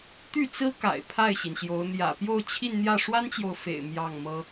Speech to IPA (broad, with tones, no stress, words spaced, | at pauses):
t̪y˥˩t͡sɹ̩˥ka̰˨˩ɪ̯ pʰa˥˩ɪ̯ɕi˩nɕjo˧˥ʊ̯ n̪jä̰˨˩pjo˥˧ʊ̯t͡ɕʰi˥˧nn̪jä˥˩ ʂwa˥nt͡ɕjo˨ʊ̯fḛ˨˩ɪ̯ mjɑ˥˩ŋmɤ˥